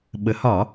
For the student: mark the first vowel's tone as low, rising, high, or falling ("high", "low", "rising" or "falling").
rising